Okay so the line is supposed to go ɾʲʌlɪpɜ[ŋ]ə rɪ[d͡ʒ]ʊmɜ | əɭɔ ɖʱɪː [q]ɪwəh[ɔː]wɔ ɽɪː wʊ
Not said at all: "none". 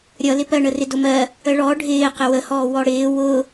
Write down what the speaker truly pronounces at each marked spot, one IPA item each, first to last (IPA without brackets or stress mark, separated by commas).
ɳ, d, q, ɔː